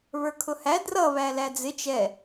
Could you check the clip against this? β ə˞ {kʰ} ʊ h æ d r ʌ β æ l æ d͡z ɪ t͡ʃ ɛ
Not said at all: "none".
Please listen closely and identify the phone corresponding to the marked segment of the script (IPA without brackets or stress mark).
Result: kʰ